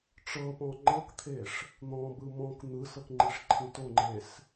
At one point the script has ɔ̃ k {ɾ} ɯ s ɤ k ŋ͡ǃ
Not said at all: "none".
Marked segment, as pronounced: n̪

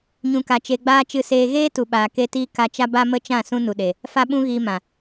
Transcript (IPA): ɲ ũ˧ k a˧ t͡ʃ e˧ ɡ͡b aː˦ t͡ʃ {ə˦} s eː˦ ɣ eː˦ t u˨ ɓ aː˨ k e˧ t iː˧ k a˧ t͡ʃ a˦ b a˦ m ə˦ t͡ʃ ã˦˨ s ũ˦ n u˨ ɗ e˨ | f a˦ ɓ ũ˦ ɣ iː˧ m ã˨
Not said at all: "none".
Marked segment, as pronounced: ɨ˦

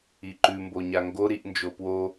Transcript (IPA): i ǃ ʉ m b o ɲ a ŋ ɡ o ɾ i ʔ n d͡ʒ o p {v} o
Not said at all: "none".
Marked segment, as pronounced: w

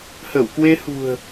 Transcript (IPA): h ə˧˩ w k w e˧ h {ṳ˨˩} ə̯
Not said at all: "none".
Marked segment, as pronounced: ṳ˨˩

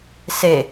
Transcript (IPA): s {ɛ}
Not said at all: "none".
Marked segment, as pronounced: e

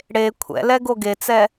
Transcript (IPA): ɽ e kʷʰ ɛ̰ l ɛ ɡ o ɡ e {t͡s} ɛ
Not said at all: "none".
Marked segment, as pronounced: t͡s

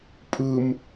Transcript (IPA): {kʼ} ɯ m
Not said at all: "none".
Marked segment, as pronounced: pʼ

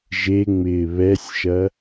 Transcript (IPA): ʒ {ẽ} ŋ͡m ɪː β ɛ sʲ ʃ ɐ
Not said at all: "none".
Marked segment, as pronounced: e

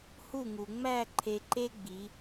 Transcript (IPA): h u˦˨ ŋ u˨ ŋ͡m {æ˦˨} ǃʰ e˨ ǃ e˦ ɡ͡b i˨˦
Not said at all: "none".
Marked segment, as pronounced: æ˦˨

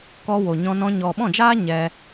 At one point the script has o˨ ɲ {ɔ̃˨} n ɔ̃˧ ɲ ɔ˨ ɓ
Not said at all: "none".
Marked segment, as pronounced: ɔ̃˧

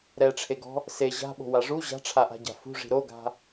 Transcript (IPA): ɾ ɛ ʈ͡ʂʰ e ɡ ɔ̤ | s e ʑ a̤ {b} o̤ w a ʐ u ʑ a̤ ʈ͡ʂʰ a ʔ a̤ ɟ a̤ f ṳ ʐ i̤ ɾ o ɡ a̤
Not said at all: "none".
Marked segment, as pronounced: ɓ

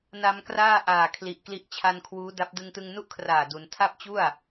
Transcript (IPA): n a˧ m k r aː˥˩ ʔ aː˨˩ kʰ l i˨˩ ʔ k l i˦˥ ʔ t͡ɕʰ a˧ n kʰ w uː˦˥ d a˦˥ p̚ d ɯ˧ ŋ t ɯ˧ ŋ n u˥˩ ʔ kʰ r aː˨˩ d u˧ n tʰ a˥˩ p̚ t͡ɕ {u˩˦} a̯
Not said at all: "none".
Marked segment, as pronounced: u˥˩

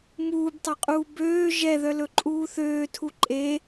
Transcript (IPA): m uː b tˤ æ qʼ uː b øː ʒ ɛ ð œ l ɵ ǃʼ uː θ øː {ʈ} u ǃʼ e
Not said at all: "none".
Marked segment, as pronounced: tʰ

